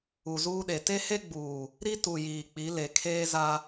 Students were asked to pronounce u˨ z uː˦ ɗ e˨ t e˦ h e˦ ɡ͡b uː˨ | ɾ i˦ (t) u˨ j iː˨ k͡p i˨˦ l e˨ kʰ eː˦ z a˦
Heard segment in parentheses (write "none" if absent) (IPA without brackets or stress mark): t